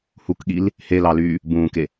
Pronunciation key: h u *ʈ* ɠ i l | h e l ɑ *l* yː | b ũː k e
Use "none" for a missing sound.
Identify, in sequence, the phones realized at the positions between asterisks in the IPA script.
k, l

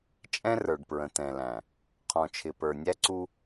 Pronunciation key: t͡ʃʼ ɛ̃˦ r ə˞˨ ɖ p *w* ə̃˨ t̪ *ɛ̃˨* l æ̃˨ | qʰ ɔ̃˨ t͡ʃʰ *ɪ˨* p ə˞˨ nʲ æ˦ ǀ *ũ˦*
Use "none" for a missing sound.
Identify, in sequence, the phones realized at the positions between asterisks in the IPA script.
ɹ, ɛ̃˨, ɪ˨, u˦

